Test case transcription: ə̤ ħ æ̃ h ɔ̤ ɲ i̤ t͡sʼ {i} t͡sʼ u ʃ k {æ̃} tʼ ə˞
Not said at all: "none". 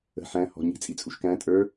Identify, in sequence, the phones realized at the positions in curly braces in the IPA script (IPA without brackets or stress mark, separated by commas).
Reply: i, æ̃